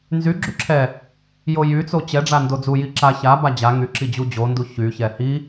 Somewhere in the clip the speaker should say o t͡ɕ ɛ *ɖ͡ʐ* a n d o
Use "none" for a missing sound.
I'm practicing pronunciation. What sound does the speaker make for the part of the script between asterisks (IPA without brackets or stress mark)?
ɖ͡ʐ